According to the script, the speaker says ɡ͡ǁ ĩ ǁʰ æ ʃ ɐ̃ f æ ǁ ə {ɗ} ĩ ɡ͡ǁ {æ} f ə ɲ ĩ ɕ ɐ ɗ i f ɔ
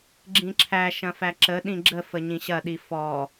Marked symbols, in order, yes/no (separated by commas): yes, no